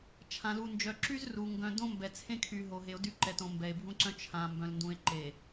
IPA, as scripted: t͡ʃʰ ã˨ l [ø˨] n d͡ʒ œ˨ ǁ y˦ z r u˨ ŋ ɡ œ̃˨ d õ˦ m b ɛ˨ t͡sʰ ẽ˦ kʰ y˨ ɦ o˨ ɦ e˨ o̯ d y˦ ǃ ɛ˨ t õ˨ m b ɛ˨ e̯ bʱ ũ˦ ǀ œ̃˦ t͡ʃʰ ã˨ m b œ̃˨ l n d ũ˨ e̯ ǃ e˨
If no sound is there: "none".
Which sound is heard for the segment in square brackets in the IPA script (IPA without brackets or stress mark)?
u˨